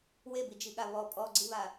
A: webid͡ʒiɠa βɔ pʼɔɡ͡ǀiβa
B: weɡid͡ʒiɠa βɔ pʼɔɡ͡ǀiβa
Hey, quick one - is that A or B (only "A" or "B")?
A